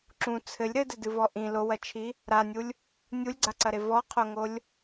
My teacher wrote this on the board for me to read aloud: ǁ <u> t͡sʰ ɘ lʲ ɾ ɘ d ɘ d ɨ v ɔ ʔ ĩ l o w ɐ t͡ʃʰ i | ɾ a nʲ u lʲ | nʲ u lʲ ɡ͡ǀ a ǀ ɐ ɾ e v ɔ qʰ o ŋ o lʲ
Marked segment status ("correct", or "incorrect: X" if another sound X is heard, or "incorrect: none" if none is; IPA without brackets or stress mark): incorrect: ũ